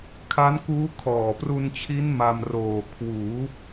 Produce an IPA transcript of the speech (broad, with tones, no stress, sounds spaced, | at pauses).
kʰ a˦˥ n k uː˦˥ kʰ ɔː˨˩ p r u˧ n t͡ɕʰ i˦˥ n m a˧ m r oː˨˩ kʰ w uː˩˦